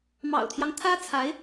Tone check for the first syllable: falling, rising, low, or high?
low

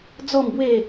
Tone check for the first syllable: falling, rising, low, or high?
low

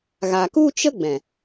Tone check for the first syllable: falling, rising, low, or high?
low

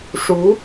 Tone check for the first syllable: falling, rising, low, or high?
rising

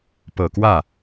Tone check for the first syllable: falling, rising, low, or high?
low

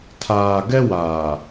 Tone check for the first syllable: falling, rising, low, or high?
low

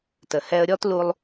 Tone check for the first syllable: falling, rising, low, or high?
low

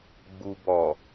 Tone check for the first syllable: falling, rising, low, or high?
low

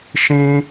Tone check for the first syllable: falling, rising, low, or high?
high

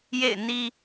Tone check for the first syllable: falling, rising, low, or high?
falling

